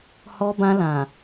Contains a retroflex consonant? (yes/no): no